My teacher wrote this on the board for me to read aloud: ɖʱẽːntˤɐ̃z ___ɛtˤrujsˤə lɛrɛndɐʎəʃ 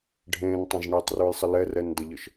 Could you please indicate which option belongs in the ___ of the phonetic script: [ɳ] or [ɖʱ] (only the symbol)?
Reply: ɳ